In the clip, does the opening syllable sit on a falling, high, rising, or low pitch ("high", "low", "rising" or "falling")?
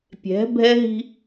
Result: rising